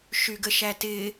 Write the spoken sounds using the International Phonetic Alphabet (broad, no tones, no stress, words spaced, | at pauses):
ʃyɡəʃætɪː